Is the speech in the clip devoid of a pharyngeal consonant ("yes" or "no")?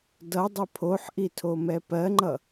no